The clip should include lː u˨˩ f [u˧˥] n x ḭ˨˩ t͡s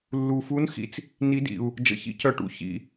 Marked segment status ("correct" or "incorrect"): correct